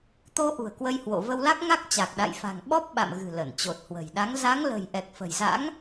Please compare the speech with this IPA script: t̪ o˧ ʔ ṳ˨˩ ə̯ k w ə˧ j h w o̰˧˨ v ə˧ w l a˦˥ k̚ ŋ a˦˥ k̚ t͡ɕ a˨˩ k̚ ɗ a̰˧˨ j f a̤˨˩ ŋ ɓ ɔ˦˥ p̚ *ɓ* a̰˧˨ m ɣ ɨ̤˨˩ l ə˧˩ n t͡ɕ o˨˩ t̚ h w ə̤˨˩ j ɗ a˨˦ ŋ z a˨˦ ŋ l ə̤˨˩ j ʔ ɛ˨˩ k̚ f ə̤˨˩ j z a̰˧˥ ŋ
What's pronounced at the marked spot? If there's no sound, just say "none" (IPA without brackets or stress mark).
ɓ